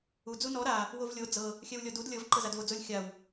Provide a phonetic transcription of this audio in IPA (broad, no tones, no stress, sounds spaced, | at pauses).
u d͡z u n ɔ ɾ a | w o v lʲ o d͡z ɤ | xʲ ɛ w lʲ ɔ d u d lʲ ɤ v ǃ ɤ z a d v o d͡z o lʲ xʲ a w